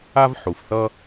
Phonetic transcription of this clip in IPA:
a˦ v ħ u˩ f θ ʌ˦

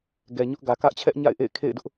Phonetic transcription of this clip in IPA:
ɡ ɛ˨ ɲ ʊ˦ ʔ ɡ ä˨ k ä˦ ʔ t͡ɕʰ ɛ˦ ʔ ɲ a̰˦˨ ɪ̯ ʔ ḛ˦˨ ɪ̯ kʰ ḛ˦˨ ɪ̯ d ʊ˦ ʔ

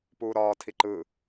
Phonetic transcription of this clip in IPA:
p uː ɾ ɒː tʰ i ǃ ɯ

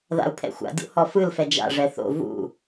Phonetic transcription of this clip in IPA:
ð a̰ u̯ pʰ ɛ̰ xʷ a̰ dʲ o̰ h ɔ f ɯ l f ɛ d͡ʒ a̰ ʐ ɛ θ o̰ v ṵ

